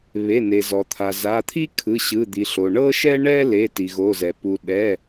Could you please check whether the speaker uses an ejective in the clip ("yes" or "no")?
no